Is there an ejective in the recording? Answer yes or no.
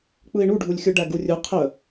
no